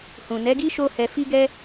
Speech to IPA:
h ũ˨ n ɛ˨˦ ɡ i˦ ʃ o˦ h ɛ˧ f i˦ ɡ ɛ˦

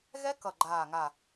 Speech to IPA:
ɣ ɛ˦˥ k ʌ˨˩ ɡ͡ǃ aː˨˩ ŋ a˨˩

